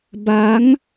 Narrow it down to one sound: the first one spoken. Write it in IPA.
b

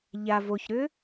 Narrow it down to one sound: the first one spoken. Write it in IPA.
ʎ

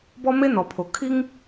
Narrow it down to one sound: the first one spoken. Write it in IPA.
b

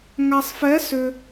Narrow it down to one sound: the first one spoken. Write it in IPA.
ŋ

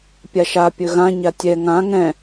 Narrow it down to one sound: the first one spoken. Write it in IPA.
pʲ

